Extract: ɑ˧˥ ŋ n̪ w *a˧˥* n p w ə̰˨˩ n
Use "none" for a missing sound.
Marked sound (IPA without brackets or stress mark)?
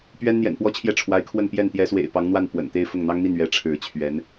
a˥˩